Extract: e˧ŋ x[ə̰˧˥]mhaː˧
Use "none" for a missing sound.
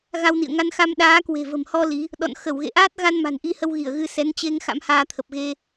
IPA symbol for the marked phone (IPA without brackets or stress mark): a̰˧˥